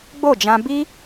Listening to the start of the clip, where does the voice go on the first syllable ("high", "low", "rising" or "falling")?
falling